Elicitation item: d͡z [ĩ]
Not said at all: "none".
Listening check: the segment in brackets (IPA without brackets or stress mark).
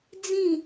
ĩ